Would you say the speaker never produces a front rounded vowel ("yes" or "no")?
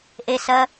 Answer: yes